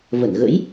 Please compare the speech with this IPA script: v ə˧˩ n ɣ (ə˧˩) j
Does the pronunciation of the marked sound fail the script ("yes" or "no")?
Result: yes